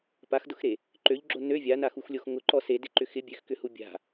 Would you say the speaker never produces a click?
no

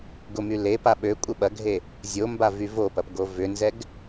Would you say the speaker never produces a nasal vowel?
yes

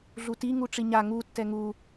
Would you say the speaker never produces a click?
yes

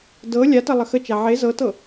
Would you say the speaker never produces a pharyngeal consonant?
no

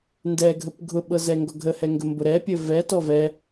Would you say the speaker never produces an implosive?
no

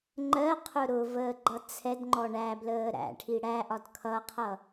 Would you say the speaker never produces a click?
no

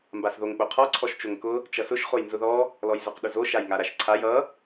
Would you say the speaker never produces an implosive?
no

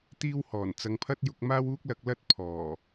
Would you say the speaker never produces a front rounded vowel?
yes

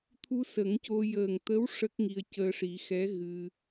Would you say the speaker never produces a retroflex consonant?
no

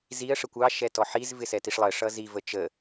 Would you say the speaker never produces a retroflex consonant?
no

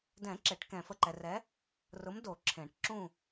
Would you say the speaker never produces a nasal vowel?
no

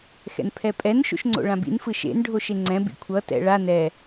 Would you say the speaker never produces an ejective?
no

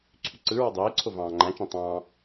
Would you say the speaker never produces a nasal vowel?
no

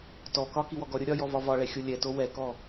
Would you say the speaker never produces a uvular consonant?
yes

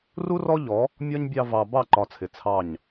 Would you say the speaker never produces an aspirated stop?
no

